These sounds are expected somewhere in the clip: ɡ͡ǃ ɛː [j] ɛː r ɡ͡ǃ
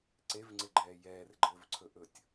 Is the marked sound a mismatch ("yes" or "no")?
no